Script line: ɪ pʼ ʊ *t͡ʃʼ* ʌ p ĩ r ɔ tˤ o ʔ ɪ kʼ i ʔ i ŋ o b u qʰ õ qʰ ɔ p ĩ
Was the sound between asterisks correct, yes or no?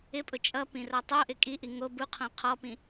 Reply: yes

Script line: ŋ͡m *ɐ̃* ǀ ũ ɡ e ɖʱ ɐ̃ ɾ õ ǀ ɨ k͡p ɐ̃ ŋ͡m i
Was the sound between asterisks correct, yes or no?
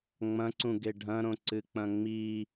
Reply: yes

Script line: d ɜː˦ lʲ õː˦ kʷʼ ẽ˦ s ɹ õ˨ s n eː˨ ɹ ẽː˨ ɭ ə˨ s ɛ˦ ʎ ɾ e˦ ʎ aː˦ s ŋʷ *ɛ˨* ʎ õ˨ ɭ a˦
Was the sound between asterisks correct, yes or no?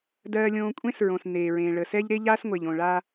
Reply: no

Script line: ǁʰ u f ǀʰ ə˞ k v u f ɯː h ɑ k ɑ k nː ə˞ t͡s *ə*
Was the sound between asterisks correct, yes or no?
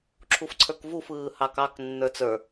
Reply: no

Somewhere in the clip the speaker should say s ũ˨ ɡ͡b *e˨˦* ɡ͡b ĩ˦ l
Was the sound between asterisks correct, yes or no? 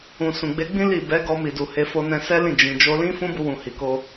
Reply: yes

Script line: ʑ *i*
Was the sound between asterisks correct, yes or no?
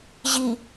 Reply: yes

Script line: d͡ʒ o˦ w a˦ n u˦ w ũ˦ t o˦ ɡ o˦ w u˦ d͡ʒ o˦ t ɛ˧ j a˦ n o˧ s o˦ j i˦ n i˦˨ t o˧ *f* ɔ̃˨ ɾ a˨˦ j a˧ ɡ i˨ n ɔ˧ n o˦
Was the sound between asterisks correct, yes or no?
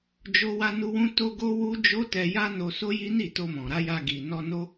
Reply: no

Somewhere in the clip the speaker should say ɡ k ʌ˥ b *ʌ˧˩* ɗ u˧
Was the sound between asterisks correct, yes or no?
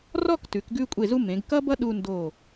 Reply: no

